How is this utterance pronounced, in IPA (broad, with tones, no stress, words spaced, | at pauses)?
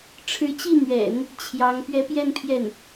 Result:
ʈ͡ʂʰɻ̩˧˥t͡ɕi˥˩n̪ɥɛ̰˨˩˦n | t͡ɕʰjɑ˧˥ŋ pɥɛ˧˥pjɛ˥˧n pʰjɛ˥˩n